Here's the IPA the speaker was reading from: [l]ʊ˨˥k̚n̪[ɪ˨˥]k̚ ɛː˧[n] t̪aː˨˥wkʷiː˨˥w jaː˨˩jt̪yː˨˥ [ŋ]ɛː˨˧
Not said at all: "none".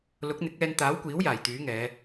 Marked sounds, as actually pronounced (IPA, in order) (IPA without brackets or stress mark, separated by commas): l, ɪ˨˥, n, ŋ